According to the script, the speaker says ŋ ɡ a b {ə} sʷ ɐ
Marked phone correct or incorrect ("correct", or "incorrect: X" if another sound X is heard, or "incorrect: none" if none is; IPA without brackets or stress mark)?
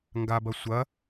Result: incorrect: ɐ